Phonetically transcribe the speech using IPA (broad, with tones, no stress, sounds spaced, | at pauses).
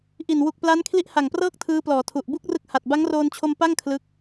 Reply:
ʔ i˨˩ n w u˨˩ k̚ p l a˦˥ n kʰ l i˦˥ ʔ h a˨˩ ŋ p r ɤː˥˩ k̚ tʰ ɯː˦˥ p l ɔː˩˦ tʰ u˨˩ ʔ b u˥˩ k̚ r ɯ˦˥ k̚ h a˨˩ t̚ b a˦˥ ŋ r oː˧ n t͡ɕʰ o˧ m p a˥˩ ŋ kʰ l ɯ˦˥ k̚